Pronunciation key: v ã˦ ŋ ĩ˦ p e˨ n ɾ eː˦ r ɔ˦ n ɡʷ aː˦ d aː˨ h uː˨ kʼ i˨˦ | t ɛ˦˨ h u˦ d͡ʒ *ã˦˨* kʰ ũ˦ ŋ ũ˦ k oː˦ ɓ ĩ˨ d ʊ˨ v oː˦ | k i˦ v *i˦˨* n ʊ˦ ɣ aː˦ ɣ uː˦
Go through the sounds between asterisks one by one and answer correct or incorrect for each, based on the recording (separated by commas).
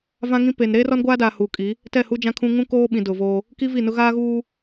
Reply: incorrect, correct